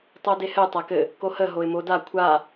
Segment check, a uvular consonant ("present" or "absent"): absent